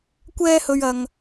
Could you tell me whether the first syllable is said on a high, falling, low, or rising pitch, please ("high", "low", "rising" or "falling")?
high